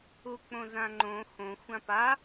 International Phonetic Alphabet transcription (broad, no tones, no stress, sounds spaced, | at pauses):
u k͡p õ z ã ŋ͡ǃ õ x õ xʷ ã p a